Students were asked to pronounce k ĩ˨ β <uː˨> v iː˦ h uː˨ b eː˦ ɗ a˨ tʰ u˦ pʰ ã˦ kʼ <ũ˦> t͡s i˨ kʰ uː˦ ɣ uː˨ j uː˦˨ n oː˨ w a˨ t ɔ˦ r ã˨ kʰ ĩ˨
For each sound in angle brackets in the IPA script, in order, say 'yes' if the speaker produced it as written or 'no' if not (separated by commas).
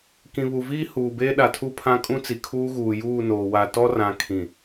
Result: no, yes